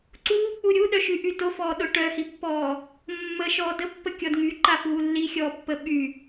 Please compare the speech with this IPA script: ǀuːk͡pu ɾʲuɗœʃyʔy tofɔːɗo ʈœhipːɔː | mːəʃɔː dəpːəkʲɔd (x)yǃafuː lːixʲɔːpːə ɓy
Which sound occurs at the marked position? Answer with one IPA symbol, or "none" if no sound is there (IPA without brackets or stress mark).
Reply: ŋ